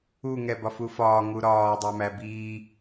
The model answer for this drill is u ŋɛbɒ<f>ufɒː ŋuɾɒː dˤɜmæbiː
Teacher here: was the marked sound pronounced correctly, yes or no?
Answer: yes